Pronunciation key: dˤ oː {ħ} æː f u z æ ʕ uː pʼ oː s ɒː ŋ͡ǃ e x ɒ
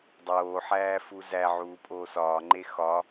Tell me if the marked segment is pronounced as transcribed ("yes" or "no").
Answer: yes